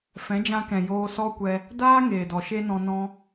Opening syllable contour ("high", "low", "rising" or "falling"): rising